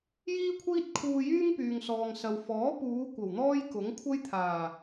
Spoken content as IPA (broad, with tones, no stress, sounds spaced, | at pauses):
j iː˥ kʷʰ iː˥ t̚ kʰ uː˧ j yː˥ ŋ p yː˨ ŋ s ɔː˨ ŋ s ɐ˨ w f ɔː˨˥ p uː˨˧ kʷ ɐ˨˩ w n̪ ɔː˥ j k ʊ˨˥ ŋ kʷʰ ɐ˥ j t̪ʰ aː˨˩